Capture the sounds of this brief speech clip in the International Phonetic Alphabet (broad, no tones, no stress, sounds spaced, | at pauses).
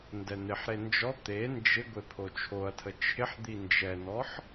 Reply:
n d ɛ n̪ ɪ ħ ɾ e n d͡ʒ ɔ t̪ e n d͡ʒ ɪ ɡʷ e pʰ o t͡ʃʰ o ɐ̯ tʰ ə t͡ʃʰ ɪ ħ d̪ i n d͡ʒ ɛ n ɔ ħ